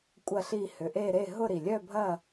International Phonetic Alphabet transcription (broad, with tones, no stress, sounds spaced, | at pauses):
kʷʼ ɐ˦˨ ɬ i˦˨ h ʏ˨˩ ʔ e˦˨ ɾ e˦˨ ɦ ʊ˦˨ ɾ i˨˩ lʲ œ˦˨ bʱ ɐ˦˨